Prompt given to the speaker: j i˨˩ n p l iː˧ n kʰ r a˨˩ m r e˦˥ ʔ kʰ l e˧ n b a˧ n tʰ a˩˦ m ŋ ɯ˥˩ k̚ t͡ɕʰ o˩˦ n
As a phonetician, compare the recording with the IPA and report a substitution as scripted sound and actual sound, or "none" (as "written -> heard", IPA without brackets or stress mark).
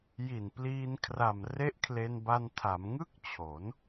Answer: none